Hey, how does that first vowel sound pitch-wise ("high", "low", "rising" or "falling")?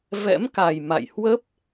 rising